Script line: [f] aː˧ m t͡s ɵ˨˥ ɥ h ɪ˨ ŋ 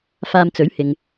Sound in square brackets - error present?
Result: no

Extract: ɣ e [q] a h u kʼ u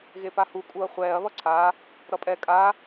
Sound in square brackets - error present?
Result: yes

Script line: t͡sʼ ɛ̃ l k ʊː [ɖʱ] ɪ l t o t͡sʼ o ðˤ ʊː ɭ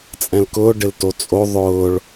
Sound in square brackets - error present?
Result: yes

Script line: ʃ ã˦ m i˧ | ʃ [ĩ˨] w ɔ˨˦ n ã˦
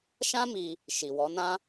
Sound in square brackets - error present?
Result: yes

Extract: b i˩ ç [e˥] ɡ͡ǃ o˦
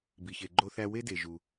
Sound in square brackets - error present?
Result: yes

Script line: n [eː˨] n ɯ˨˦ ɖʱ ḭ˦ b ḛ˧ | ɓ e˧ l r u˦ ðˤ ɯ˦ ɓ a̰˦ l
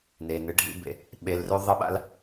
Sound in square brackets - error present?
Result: yes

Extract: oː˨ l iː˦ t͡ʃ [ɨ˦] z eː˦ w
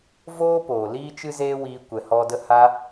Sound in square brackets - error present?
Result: no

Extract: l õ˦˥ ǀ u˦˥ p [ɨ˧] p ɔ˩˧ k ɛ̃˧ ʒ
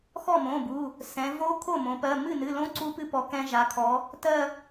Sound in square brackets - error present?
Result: yes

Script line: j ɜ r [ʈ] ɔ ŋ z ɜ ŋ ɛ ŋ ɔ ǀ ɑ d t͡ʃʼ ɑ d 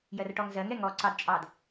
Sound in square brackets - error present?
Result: no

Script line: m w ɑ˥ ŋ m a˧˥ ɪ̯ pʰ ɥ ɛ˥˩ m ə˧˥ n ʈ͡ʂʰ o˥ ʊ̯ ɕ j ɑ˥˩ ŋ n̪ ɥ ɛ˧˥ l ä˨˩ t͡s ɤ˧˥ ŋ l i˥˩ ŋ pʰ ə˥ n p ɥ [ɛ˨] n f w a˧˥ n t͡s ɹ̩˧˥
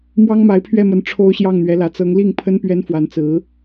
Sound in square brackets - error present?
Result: yes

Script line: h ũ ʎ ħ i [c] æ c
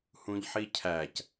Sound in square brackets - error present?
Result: yes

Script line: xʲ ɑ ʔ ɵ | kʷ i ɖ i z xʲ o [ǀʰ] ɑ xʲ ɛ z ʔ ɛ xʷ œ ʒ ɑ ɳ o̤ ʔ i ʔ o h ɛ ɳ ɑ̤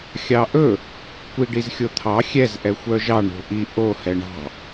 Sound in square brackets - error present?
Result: yes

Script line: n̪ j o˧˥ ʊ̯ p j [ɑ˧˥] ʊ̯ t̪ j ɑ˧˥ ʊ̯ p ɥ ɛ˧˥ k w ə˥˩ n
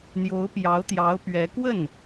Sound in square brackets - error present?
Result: no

